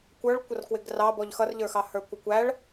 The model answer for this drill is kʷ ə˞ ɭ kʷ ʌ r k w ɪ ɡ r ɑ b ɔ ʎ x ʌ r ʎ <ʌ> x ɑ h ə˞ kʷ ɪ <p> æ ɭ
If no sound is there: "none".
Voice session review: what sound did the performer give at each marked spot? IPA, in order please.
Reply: ə˞, kʷ

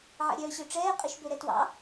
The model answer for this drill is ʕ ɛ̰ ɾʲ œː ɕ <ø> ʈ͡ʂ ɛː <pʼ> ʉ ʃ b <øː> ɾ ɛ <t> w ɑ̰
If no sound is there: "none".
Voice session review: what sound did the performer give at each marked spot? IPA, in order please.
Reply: ø, qʼ, ø, t

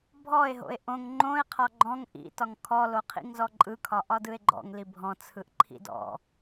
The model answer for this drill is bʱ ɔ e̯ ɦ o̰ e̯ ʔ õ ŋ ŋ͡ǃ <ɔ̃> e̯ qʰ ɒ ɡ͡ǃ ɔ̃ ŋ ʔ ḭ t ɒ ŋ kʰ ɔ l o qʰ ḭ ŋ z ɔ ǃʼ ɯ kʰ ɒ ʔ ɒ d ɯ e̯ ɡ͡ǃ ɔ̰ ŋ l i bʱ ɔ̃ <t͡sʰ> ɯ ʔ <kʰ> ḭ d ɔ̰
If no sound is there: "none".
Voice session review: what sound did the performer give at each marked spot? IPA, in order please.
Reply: õ, t͡sʰ, ǃʰ

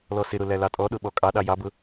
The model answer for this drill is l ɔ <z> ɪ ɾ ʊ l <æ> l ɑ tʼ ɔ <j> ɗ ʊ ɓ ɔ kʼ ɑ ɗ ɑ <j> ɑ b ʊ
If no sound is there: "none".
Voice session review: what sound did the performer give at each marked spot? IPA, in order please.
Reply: s, æ, none, j

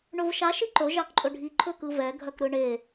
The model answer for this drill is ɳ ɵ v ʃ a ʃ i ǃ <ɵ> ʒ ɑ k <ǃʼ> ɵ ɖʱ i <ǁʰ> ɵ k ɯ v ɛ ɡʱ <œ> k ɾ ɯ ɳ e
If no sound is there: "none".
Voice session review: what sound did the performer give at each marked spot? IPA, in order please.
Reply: ɵ, ǃʼ, ǃʰ, œ

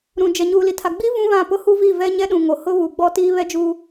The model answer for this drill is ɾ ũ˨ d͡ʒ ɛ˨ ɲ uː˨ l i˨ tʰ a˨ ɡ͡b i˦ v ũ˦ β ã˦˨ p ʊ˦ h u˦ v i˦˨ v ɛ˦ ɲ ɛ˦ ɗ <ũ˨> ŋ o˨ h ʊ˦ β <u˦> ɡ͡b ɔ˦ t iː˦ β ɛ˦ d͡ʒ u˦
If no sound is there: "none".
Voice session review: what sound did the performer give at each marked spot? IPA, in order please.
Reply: ũ˨, u˨

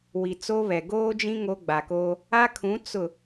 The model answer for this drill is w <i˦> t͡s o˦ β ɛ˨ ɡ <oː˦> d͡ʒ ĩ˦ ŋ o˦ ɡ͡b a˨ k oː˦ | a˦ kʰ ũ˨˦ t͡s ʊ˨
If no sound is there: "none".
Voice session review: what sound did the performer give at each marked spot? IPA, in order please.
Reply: i˨, oː˦

